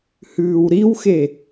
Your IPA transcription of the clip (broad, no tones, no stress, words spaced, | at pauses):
hʉːwɾiwxe